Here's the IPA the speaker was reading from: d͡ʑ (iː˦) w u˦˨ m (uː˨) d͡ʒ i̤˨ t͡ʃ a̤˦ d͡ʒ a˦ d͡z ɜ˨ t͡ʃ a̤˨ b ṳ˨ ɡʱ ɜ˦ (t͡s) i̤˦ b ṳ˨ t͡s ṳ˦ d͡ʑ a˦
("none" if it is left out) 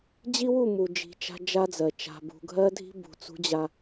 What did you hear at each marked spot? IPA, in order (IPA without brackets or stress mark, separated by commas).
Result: i˦, u˨, dʱ